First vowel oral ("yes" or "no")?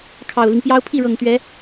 yes